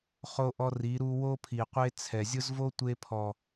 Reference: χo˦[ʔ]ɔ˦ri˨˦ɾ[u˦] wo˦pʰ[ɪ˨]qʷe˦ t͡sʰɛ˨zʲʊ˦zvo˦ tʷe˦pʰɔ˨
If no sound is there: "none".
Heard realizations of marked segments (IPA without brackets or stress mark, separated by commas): ʔ, u˦, i˨